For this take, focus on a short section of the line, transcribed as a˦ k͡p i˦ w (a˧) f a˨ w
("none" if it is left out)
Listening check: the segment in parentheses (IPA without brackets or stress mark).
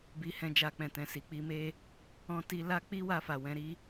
a˧